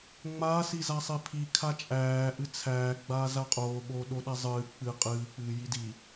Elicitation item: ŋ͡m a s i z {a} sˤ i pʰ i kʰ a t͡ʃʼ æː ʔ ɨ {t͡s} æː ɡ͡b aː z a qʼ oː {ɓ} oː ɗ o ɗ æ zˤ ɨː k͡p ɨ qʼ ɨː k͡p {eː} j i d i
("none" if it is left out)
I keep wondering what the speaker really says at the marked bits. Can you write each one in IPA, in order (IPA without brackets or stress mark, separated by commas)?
a, t͡sʰ, ɓ, ɨː